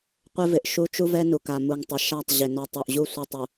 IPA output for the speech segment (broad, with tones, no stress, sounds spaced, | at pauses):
qʷ ɪ˦ v ɪ˨ ʔ ʃ u˦ t͡ʃ u˦ v ɛ˦ n u˨ k a˨ m u˨ ŋ tˤ ɪ˨ ʃ a˦˨ tˤ ʑ ɪ˨ n ɔ˨ tˤ o˨ ʔ ʑ u˦˨ sʷ ɛ˦ tˤ u˨